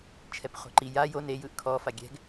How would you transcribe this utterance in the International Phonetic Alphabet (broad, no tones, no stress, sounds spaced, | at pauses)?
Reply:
t͡ʃʰ ɛ p χ o̤ ǃ i j a j o n e j ɯ ʔ kʰ ɔ f a ɡʲ ɛ̤ ɡ